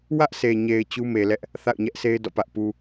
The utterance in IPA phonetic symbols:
w ä˦ ʔ s e˨ ɲ e˨ ɪ̯ t͡ɕ u˦ m e˨ l ɛ˦ ʔ | θ a̰˦˨ ʊ̯ ɲ ɛ˦ ʔ s e˦ ɪ̯ d ɔ̰˦˨ p ä˦ ʔ p u˦

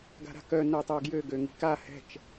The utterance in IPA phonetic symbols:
ɡ a̤ ɾ a̤ k œ n œ tˤ ø ɡ j ø ɡ ø ŋ i̤ k a h ɛ̤ t͡ʃ

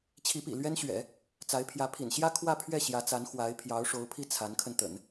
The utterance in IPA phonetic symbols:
t͡ɕʰ i˧˥ p ḭ˨˩ l ɥ ɛ˥ n ɕ ɥ ɛ̰˨˩˦ | t͡s a˧˥ ɪ̯ pʰ j ä˧˥ pʰ ḭ˨˩ n ɕ j ä˥ kʰ w ä˥˧ pʰ ɥ ɛ˥˩ ɕ j ä˧˥ t͡s a˧˥ n x w a˧˥ ɪ̯ pʰ j ɑ˧˥ ʊ̯ ʂ o˧˥ ʊ̯ pʰ i˥˩ t͡sʰ a˧˥ n kʰ ə˧ n t̪ ə̰˨˩˦ n

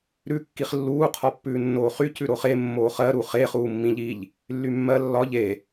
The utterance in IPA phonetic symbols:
ɾ ʉ kː i χ lː uː qʰ ɒ pː ʉː nː oː χ y c ʉ ɾ o χ e mː oː χ ɜ ɾ u χ e χ uː mː ĩ ʎ i ʎ | lː y mː ɜ lː ɒ ʎ e

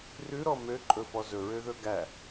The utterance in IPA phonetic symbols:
r ʉ ɾ ɔ m ø ǃʼ ɵ f ɔ z ɵ ɹ ø ð ɵ ɡ æ

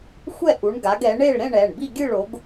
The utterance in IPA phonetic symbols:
xʷ ɛ˥˧ ʔ u˨˦ ɳ ɡ a˨˦ ɡ ɛ˨˦ ɳ e˥˧ ɭ ɾ ẽ˥˧ ɳ ɛ˩˧˩ ɳ b i˥˧ ɡʲ ɯ˥˧ ɭ o˨˦ ɡ

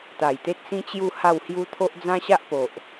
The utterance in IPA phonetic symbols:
t̪ a˨˩ j t̪ e˦ t̚ s ĩ˦ t͡ɕ j u˥˧ h a˥˧ w h j u˦ t̪ʰ o˦ ʔ d͡z ã˦ ɕ a˦ ʔ p o˨ ʔ

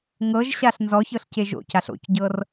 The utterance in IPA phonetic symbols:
ŋ ɤ ʒ ɕ a ɬ n z ɔ ç ɤ ɬ c e ʒ o̰ c a ɬ o̰ c ɟ ɤ r

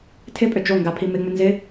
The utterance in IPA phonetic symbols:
tʰ ɪ pʼ ʏ d͡ʒ o ŋ ɡ a pʰ i m ɪ ŋ͡m ʏ n z ɪ

